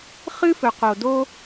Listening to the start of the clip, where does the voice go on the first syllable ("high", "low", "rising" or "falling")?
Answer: high